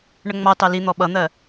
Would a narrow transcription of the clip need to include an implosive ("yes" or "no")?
yes